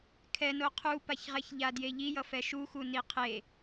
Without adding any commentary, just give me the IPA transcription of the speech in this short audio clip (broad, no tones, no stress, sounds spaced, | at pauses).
kʰ ɛ n o qʰ u p a ç ʁ ɛ ç ʎ a d j e ʎ i j ʌ f ɛ ʃ u x u n i qʰ e